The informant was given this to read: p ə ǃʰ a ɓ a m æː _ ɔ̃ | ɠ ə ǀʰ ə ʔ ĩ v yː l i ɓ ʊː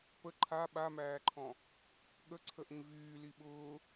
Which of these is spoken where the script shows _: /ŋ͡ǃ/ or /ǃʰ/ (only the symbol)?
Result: ǃʰ